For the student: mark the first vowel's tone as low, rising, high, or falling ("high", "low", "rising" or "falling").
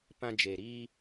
high